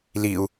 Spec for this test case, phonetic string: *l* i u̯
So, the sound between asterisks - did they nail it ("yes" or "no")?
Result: yes